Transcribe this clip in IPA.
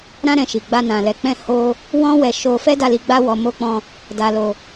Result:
ɾ ã˦ ɾ ɛ̃˧ ʃ i˨ ɡ͡b a˧ n ã˨ l ɛ˨ k͡p ɛ̃˧ h o˦ | w ɔ̃˦ w ɛ˧ ʃ o˧ f ɛ˦ d a˦˨ l i˧ ɡ͡b a˦ w ɔ˧ m o˧ k͡p ɔ̃˧ | d a˧ l o˧

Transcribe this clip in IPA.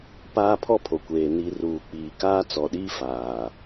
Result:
p aː˦ pʰ ɔ˦ pʰ o˨ kʷ eː˨ n i˨ r uː˨ k͡p iː˨ k aː˦ t͡s ɔ˨ ɗ iː˦ f aː˨

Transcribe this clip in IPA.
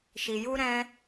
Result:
ʃ i˧ j u˦ ɾ ɛ̃˦

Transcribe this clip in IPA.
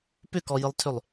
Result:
p ʏ k ɔ j ɨ lˠ tʰ ʏ lˠ

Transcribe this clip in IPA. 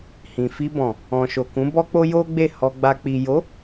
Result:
h ĩ˨ f i˧ b ɔ̃˨ | ɔ̃˨ ʃ o˨ k ũ˨˦ b ɔ˦ k͡p o˦ j o˦ ɡ͡b e˦˨ h ɔ˧ ɡ͡b a˧ k͡p i˨ j o˨˦

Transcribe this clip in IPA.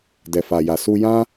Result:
d ɛ˨ f a˨ j a˨ s u˧ j ã˦

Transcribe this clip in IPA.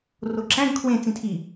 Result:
r o ǁ æ̃ ɡ kʰ w ẽ t͡s ĩ tʰ i

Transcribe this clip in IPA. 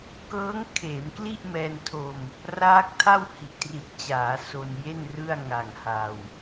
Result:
k ɤː˦˥ ŋ kʰ eː˩˦ m k l i˥˩ ʔ m ɛː˧ n tʰ o˧ m | r aː˦˥ k̚ tʰ a˥˩ w h i˨˩ ʔ t r i˨˩ t̚ t͡ɕ aː˩˦ s o˧ n j e˥˩ n r ɯ˥˩ a̯ ŋ a˨˩ ŋ h a˧ w

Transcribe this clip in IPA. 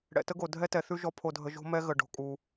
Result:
ɽ ɛ̰˨ t ə˦ ɡ o˨ dʱ ɛ˦ t ɛ˨ θ ʉ˦ ʒ ɔ˦ pʰ o˨ dʱ ə˨ ʒ o̤˦ m ɛ˦ ɣ ə˨ ɖ o̤˨ kʼ u˨

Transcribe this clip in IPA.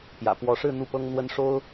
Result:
p j ä̰˨˩ p w ɔ˧˥ ʂ ɻ̩˥˧ n̪ u˥˩ p ɤ˥ ŋ n̪ w ə˥ n ʂ o˥ ʊ̯

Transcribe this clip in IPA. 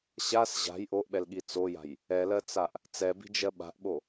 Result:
ɕ a s ʑ a̤ j ʔ o ʔ ɓ ɛ l ɠ i t͡s o j a̤ j | ɛ l ɜ t͡s a ʔ | t͡s ɛ b i̤ d͡ʒ ɜ ɓ a̤ ʔ ɓ o

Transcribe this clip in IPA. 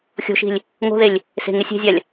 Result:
xʲ o̤ ʃ i̤ lʲ | ŋ o̤ ð e lʲ | s e̤ ŋ e sʲ e̤ zʲ a lʲ

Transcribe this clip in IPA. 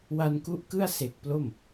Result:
w a˧ n k u˦˥ ʔ k ɯ˥˩ a̯ s e˨˩ k̚ p l o˥˩ m

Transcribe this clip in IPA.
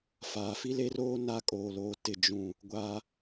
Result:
f aː˨ f i˦ l e˦ r oː˦ n a˦ kʼ oː˨ l oː˨ t ɪ˨ d͡ʒ ũ˨ | ɡʷ a˦

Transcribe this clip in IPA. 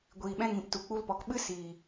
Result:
ɡʷ iː˨ ɓ ɛ̃˧ ŋ ĩ˨ p t u˨ k͡p u˧ l p ɔ˨ k ɓ ɨ˦ s iː˨

